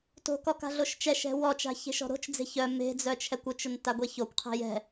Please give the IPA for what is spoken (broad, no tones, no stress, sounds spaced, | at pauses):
t o̤ k ɔ k a̤ ɮ o ʃ t͡ʃ ɛ ʃ ɛ̤ w ɔ t͡ʃ a̤ ç e̤ ʃ ɔ̤ ɾ o̤ t͡ʃ d͡z e̤ ç œ m e̤ d͡z œ t͡ʃʰ ɛ kʷ ʊ t͡ʃ ʊ n t a ɡʷ ɛ ç o kʷ qʰ e̤ j ɛ̤